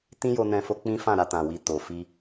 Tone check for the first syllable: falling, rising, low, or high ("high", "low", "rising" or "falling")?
high